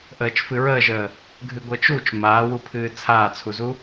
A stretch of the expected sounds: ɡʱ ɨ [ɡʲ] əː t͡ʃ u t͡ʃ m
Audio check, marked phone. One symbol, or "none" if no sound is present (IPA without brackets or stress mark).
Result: ɡʷ